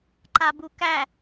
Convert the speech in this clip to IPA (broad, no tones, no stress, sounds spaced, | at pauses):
ǃ a b u k æ